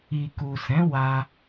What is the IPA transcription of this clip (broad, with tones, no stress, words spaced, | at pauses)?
i˨ku˨sɛ̃˨˦ wa˧